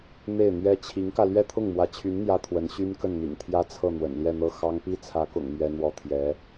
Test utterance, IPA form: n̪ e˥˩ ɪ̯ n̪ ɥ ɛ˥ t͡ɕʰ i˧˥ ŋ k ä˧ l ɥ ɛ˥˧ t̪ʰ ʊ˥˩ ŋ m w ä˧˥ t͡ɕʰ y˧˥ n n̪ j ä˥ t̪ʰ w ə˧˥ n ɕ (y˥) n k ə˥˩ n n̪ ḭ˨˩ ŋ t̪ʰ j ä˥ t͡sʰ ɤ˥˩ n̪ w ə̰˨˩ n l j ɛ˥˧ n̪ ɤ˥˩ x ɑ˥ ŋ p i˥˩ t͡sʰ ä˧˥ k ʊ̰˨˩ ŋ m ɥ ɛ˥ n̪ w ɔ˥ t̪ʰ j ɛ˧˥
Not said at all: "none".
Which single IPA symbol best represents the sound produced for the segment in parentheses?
y˥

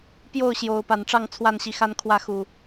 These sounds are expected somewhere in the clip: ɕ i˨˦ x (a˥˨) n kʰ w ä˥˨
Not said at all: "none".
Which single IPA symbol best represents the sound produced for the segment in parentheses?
a˦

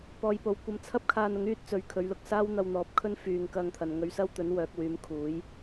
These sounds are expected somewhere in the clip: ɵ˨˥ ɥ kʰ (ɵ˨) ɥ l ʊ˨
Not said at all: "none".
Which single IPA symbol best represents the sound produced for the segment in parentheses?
ɵ˨˧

